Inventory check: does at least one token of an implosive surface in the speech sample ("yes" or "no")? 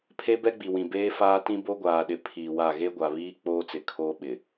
yes